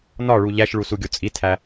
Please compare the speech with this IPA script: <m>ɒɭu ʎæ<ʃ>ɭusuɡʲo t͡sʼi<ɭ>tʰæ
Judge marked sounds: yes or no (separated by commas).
no, yes, no